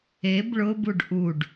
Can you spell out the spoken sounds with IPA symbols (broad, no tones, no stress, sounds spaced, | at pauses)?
e b ɭ ʊ b u ɖ ʔ u ɖ